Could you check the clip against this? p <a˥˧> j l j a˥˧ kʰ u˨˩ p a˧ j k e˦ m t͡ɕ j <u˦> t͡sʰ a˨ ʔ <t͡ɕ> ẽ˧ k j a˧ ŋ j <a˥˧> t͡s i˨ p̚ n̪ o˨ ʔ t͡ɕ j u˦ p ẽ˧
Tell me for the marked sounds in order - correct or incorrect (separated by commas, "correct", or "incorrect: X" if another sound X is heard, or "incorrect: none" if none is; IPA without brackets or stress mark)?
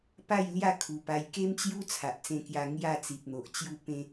correct, correct, incorrect: t͡s, correct